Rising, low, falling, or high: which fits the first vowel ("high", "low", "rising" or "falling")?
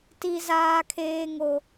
high